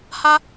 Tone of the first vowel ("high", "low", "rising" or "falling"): high